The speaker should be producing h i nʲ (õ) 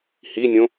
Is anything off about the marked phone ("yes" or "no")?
no